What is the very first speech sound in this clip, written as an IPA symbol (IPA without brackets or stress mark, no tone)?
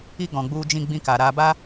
i